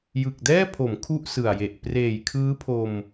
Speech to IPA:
j ɯ˨˩ k̚ d ɛː˥˩ pʰ o˩˦ m kʰ u˥˩ ʔ s ɯ˨˩ a̯ j e˨˩ ʔ p r eː˨˩ j kʰ ɯː˦˥ pʰ o˧ m

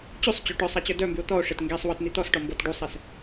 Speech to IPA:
t͡ɕ y sˤ t͡ɕ o ʈ œ sˤ a t͡ɕ œ d œ m b y o̯ t̪ ɔ o̯ ʂ e t ŋ ɡ e sˤ w ɔ t n̪ i t̪ ɔ s ʈ ɔ m b ɔ t ɖ u sˤ ɛ s

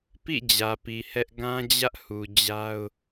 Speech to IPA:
p ḭ˦˨ d͡ʑ ä˨ p i˨ h ɛ˦ ʔ ɡ ã˦ d͡ʑ ä˦ ʔ h u˨ d͡ʑ a˦ ʊ̯

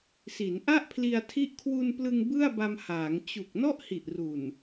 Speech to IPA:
s i˩˦ n ʔ a˥˩ ʔ pʰ l i˧ a̯ tʰ i˦˥ ʔ kʰ w u˧ n p l ɯ˧ ŋ b ɯ˥˩ a̯ b a˧ m h aː˩˦ ŋ t͡ɕ u˨˩ k̚ n ɔ˥˩ ʔ h i˨˩ ʔ r u˨˩ n

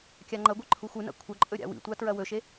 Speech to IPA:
kʲ a ŋ͡ǃ ɐ ɡʷ i ǃʰ u xʷ ɨ n a̰ kʷʰ ɐ ǃʼ ɵ ɾʲ a̰ w ḭ tʷ a t ɹ ɐ w ɵ ʃ e

